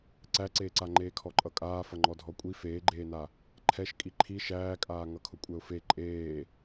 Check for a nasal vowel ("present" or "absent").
absent